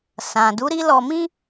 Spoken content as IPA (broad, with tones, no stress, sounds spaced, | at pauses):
s ã˨ d u˨˦ ɾ i˦ l ɔ˧ m ĩ˦